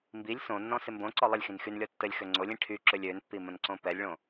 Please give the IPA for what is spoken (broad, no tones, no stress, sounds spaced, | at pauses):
m b i lʲ s õ nː ɔ̃ s ɪ m b õ ǀ ɔ lˠ ə lʲ x ĩ n x y n lʲ ɔ tː ə lʲ x ø ŋ͡ǀ o lʲ ĩ ʈʰ y ǁ ø lʲ ø n pː i m ə̃ n ǀ õ p ɛ lʲ ɭ õ